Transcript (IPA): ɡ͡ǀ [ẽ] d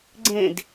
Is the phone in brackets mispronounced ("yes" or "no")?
no